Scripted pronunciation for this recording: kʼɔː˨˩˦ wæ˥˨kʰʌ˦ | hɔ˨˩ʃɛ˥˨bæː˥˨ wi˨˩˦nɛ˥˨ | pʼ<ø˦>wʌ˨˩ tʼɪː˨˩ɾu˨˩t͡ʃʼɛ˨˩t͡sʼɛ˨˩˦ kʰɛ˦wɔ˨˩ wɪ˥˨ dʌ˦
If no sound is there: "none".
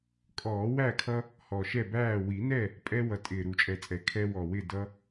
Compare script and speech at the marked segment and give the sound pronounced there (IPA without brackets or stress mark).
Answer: ɛ˦